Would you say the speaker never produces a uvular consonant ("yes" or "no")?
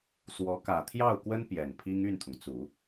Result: yes